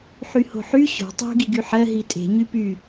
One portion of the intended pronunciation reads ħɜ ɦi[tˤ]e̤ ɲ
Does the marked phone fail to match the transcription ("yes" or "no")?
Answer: yes